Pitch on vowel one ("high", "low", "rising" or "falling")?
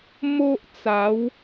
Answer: high